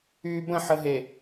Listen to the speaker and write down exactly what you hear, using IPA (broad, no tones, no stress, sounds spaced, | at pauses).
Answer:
yː b ə̃ ħ ə ɦ e